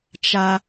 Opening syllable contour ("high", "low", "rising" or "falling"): high